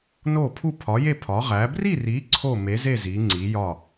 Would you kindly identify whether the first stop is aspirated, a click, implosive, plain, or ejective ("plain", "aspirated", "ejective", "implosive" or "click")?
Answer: aspirated